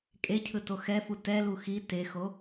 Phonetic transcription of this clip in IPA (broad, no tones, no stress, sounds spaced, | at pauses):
kʼ e cʰ ɯ t o x ɛ f u t ɛ l u x i t e x o